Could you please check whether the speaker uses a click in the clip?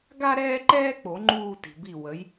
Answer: yes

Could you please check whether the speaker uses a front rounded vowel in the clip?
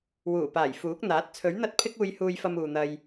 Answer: no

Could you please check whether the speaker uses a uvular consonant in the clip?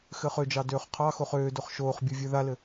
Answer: yes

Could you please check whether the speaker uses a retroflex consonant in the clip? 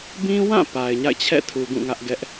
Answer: no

